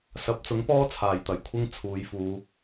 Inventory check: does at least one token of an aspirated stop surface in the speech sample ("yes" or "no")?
yes